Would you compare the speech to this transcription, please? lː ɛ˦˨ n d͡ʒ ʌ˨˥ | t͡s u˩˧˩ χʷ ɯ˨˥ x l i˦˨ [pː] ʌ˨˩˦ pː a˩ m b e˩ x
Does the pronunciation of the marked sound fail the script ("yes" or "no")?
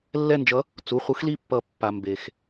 no